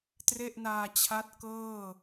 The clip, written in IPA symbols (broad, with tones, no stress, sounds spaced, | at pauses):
t r e˥˩ ʔ n aː˧ t͡ɕʰ a˦˥ t̚ k ɤː˥˩